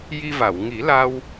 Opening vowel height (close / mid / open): close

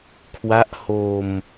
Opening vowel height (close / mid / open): open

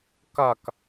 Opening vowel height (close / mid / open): open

